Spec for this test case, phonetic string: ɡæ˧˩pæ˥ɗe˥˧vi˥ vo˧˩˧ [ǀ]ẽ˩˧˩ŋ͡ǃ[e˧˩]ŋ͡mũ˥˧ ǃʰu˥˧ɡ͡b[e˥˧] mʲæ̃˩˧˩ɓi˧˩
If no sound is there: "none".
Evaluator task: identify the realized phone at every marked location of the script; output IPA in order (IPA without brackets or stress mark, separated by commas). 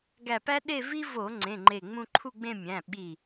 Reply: ŋ͡ǀ, e˧˩, ẽ˥˧